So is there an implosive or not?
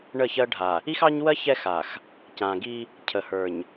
no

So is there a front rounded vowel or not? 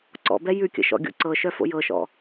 yes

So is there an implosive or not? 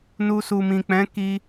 no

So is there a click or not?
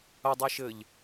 no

